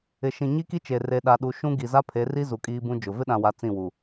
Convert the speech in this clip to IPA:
ɪ˨ ʃ ĩ˨ ɲ i˦ k i˦ t͡ʃ e˨ r e˨ ɗ a˨ ɗ u˨ ʃ ũ˦ ɡ i˨ z a˦ pʰ e˨˦ r i˦ z u˨ kʼ iː˦ b ũ˦ d͡ʒ ʊ˨ v ɪ˦ ɗ ã˨ w a˨ t͡s ĩ˦˨ w u˨

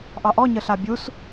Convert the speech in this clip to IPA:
ʔ ɑ ʔ ɔ ɲ ə ɬ a bʲ u s

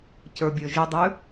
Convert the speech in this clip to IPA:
c ə˞ bʲ ə˞ ʒ ɨ dˤ ʉ

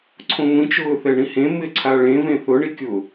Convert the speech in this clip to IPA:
ǀʰ õ ŋʷ ĩ t͡ʃ ʊː θ ɛ ɳ ĩ h ẽ m ɪ ǀʰ a ɭ ẽ v ẽ θ ʊ ɳ i kʲ ʊ

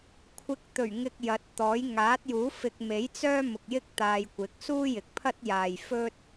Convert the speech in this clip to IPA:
kʷʰ ɪ˨˥ k̚ t̪ ɵ˨˩ ɥ ŋ ɪ˨ k̚ j ɐ˨˥ t̚ t̪ ɔː˨˥ j ŋ aː˨˥ t̚ j uː˨˥ f ɪ˧ k̚ m e˨˥ j t͡s œː˥ m ʊ˨ k̚ j ɪ˥ k̚ t̪ aː˧ j kʷ ɪ˨˥ k̚ s uː˥ j ɪ˨ k̚ pʰ ɐ˥ t̚ j aː˨ j f ɵ˥ t̚

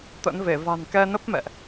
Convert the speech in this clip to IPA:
t̪ ə̰˧˥ n v e˧˩ v a̤˨˩ n k ɛ˧ n ə˦˥ p̚ m ɛ̰˧˨ ʔ

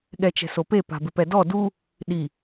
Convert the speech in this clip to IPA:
ɠ ɛ t͡ʃ ɛ̤ s o p e p a̤ b ɪ p ɛ d ɔ d u | ɗ i

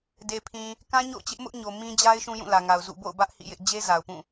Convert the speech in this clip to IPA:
d e˨ pʰ ĩ˨ | k ã˦ ɲ o̰˦˨ ʊ̯ t͡ɕ ɪ˦ ʔ m ʊ˦ ʔ ɲ o˨ m ĩ˦ d͡ʑ a˦ ɪ̯ ʃ ũ˦ j ũ˦˨ l ä˨ ŋ a˨ ʊ̯ z ṵ˦˨ b o̰˦˨ ʊ̯ b ä˦ ʔ h ḭ˦˨ j ɪ˦ ʔ d͡ʑ e˦ z a˨ ʊ̯ p ũ˦˨

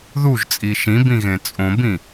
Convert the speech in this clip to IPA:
ð u ʒ t͡sʼ i ʃ ĩ b ĩ ɣ ẽ t͡sʼ õ b ĩ

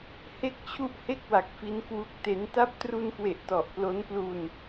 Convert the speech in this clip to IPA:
h e˦˥ k̚ t͡ɕʰ u˦˥ ʔ h e˥˩ k̚ w a˨˩ k̚ f i˦˥ n k w u˦˥ k̚ t e˦˥ n t a˦˥ p̚ t r u˧ n k w e˨˩ ʔ t ɔ˨˩ ʔ p l o˦˥ n p l u˧ n

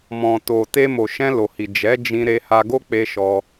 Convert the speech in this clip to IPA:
m ɔ̃˨ t o˨ t e˧ m o˨ ʃ ɛ̃˧ l o˨ h i˨ d͡ʒ ɛ˨˦ d͡ʒ ĩ˧ ɾ e˧ h a˧ ɡ o˦ k͡p e˧ ʃ ɔ˧

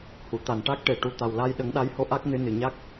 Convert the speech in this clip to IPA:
h u˨˩˨ t̪ a˨˩ n ʈ a˦˥ k̚ ʈ e˨˩ ʈ u˨˩˦ t̪ a˨˩ w l a˧ j ɗ ə˨˩˦ ŋ ɗ a˧˥ j h o˧ ʔ a˦˥ k̚ n ɨ˧˥ n ɨ˨˩ ɲ a˦˥ k̚

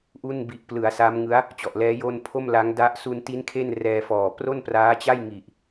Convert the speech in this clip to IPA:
ʔ u˥˩ n b i˨˩ ʔ p l ɯ˩˦ a̯ s a˦˥ m ŋ ɯ˦˥ a̯ | t͡ɕ ɔ˨˩ ʔ l ɛː˦˥ j o˥˩ n pʰ o˥˩ m l a˦˥ ŋ d a˦˥ ʔ s u˧ n t i˦˥ n kʰ e˥˩ n r ɛː˧ f ɔː˨˩ p r o˥˩ n p r aː˦˥ t͡ɕ a˥˩ j ŋ i˨˩ ʔ

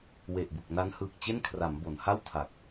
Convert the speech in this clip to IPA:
w e˨˩ ʔ b u˨˩ k̚ n a˦˥ n h ɯː˨˩ k̚ t͡ɕ e˥˩ n kʰ r a˩˦ m b o˩˦ n h a˥˩ w tʰ a˨˩ k̚

